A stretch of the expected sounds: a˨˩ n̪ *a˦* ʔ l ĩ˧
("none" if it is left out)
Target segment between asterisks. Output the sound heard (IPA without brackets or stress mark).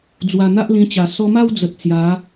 a˦